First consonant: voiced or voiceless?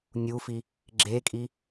voiced